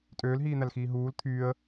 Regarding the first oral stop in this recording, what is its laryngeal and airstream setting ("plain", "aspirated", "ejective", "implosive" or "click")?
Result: ejective